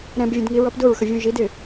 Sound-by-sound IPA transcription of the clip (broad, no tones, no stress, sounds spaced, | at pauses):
ɾ ɛ̃ b vʲ ə̃ d ŋ i ɹ ʌ p d ʊ ɹ x ə vʲ ũ ʒ i d ɪ